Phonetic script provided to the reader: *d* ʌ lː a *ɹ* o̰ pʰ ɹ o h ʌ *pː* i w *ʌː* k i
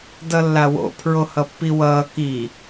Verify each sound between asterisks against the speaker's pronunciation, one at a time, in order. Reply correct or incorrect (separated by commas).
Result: correct, incorrect, correct, correct